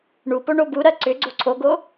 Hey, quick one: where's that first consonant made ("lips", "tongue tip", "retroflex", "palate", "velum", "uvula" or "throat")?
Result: retroflex